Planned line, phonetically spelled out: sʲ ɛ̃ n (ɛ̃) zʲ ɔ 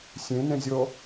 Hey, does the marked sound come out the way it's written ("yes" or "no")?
yes